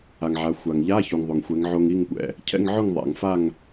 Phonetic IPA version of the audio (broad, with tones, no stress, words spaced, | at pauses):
a˩ŋʕa˩˧ xʷa˩ŋ ʎa˧˥˧ çu˩ŋðˤo˩ŋxʷɛ˩˧ŋ ʕo˧ŋi˥˨ŋkʷɛ̰˩ | cʰɛ̰˧˥˧ŋʕʊ˥˨ŋ ðˤa̰˩ŋfa˥˨ŋ